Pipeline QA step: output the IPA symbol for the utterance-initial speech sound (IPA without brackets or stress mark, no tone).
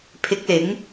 pʰ